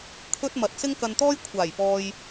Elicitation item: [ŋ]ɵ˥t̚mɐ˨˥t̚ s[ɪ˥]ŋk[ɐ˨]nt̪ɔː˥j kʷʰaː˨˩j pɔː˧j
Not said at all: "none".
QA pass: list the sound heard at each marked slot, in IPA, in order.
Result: kʰ, ɪ˥, ɐ˧

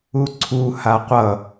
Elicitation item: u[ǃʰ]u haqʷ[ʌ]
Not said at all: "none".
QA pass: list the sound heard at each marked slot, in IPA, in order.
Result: ǀʰ, ʌ

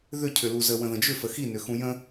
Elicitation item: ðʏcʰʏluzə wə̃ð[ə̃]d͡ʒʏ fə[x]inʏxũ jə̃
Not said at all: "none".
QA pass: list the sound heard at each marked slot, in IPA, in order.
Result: ə̃, x

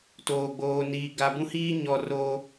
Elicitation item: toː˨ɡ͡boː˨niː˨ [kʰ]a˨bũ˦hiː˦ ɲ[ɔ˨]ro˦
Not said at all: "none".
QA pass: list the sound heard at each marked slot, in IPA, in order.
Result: ɡ, ɔ˨

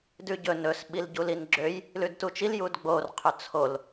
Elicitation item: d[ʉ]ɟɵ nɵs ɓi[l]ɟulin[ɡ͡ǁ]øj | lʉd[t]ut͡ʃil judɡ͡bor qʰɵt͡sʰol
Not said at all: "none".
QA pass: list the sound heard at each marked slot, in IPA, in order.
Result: ʉ, l, ɡ͡ǁ, t

